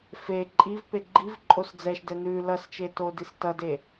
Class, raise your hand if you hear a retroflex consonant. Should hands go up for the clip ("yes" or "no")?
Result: no